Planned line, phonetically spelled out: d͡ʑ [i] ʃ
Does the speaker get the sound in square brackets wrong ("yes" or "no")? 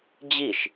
no